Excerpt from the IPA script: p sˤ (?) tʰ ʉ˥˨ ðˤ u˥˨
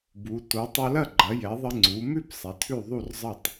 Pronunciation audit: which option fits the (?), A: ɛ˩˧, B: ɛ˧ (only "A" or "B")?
A